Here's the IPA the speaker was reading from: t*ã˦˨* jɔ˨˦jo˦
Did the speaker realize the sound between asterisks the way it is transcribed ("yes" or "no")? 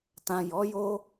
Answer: no